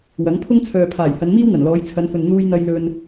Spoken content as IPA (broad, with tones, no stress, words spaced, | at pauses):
wɐ˨˥ŋ pʰʊ˥ŋt͡sʰœː˨ pʰaː˨˩j hɐ˨˧nmiː˥w n̪ɐ˨˩nlɔː˨˧jt͡sʰɐ˨˧nfɵ˨n n̪uː˧jn̪ɐ˧jlɵ˧n